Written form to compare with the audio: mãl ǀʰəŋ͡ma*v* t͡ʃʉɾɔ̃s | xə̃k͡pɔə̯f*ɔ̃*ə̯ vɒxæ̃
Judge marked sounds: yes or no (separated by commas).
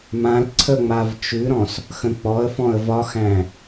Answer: yes, yes